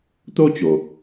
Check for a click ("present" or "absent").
absent